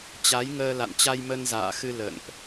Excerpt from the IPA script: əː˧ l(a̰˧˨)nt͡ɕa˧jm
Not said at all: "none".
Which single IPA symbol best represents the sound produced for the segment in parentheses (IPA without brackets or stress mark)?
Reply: a̰˧˨